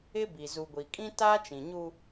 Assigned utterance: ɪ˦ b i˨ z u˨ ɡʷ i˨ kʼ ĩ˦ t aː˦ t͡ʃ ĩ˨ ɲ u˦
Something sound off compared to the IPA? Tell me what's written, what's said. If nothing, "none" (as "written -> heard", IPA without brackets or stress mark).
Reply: none